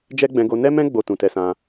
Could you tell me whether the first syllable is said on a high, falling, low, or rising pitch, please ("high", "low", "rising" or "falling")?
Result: high